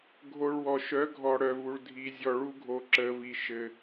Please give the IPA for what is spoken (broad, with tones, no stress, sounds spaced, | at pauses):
ɡʱ o˧ ɭ w ɔ˨ ʃ œ˨˦ ɡʱ ɔ˨ ɽ œ˨ v u˨ ɭ dʱ i˨ zʲ ɔ˨ ɭ u˧ ɡʱ o˨ ǁ ə˨ v i˨ ʃ ɘ˧